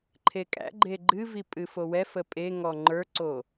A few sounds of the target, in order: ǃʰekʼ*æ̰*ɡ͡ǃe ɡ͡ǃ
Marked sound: correct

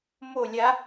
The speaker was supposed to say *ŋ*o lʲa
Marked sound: incorrect: m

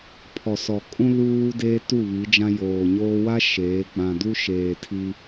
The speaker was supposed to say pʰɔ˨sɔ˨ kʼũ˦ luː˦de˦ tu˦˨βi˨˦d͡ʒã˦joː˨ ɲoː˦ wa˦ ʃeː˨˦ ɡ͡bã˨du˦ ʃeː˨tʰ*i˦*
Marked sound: correct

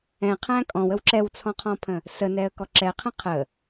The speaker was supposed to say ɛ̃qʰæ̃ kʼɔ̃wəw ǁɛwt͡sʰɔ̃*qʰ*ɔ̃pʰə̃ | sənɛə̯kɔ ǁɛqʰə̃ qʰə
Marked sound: correct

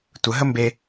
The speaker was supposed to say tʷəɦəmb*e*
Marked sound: correct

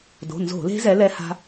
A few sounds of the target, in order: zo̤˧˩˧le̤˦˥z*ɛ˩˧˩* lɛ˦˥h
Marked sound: incorrect: ɛ˨˦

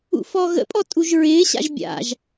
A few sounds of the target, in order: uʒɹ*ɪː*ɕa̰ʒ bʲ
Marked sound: correct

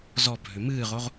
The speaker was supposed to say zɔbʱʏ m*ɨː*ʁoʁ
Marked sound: correct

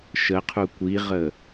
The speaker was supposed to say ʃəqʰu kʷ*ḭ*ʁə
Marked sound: incorrect: i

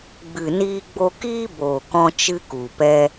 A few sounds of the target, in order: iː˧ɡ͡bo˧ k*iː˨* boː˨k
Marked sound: incorrect: iː˦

